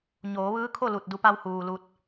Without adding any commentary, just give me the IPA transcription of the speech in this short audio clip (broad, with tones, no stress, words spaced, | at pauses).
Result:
ɲoː˩˧ʋɯː˧˥kʰo˥˨ lu˧˩t̚du˧pa˧w huː˩lu˧t̚